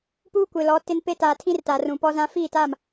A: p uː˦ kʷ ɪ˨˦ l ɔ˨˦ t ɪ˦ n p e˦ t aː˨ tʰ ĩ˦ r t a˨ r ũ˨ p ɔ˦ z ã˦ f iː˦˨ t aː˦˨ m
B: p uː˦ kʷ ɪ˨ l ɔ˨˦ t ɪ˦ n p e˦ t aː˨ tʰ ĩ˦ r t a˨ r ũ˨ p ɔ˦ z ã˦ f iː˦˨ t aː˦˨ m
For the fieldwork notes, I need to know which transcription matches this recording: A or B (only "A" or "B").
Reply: B